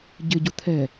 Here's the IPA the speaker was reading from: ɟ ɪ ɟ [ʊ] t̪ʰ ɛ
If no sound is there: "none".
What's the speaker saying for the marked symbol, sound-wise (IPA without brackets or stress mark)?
ʊ